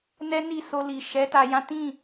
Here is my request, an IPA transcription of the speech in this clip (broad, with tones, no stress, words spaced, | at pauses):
nɛ˦ni˦˨so˧ li˨ʃɛ˨˦ ta˧jã˦ tĩ˦˨